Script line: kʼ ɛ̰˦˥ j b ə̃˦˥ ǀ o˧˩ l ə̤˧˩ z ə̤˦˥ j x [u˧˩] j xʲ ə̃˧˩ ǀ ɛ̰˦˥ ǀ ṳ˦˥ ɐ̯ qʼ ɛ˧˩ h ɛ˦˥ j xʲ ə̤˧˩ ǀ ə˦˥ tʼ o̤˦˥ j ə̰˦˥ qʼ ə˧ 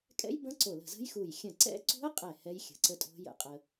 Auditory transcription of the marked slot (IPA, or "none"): u˧˩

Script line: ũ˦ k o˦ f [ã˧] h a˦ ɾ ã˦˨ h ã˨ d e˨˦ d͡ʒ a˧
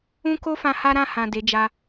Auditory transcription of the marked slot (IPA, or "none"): ã˧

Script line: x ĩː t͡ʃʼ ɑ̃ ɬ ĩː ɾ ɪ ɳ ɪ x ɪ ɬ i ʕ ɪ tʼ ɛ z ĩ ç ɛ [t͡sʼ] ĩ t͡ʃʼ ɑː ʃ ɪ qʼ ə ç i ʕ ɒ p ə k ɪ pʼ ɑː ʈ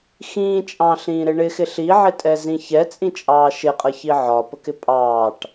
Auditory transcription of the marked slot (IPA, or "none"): t͡sʼ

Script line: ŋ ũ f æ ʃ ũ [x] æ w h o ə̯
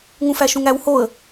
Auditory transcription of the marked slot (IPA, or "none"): ŋ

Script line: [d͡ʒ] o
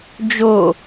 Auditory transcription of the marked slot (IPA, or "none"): d͡ʒ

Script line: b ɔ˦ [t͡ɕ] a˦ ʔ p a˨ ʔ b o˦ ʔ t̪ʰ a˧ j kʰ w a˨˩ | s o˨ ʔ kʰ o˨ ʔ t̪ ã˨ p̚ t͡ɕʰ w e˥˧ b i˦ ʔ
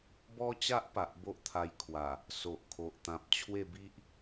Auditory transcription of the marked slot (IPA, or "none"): t͡ɕ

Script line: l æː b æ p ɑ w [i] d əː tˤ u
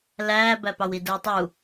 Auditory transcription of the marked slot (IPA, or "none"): i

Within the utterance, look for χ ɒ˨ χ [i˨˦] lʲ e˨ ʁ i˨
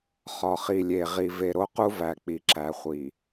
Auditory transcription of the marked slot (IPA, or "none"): i˨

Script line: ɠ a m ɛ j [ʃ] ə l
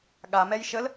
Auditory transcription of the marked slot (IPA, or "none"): ʃ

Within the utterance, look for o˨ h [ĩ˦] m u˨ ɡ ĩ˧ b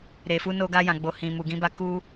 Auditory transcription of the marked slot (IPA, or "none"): ĩ˨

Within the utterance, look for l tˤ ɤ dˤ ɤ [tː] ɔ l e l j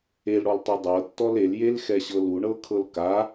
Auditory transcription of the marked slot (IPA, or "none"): tː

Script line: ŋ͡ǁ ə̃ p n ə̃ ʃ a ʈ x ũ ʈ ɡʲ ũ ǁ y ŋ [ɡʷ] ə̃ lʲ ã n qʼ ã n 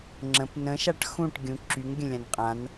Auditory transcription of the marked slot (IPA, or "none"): ɡʲ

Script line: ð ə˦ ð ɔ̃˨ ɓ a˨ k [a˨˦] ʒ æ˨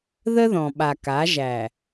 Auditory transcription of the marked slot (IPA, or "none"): a˨˦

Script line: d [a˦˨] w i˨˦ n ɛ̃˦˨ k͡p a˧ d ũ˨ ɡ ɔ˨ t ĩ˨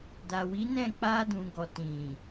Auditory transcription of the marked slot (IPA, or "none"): a˨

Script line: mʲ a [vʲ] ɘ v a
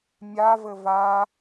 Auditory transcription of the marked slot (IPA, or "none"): v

